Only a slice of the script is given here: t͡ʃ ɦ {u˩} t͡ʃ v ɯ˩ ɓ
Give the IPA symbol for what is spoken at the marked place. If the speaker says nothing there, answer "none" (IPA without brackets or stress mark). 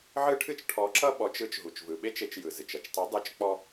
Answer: u˩